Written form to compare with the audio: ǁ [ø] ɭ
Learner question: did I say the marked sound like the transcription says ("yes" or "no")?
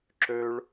yes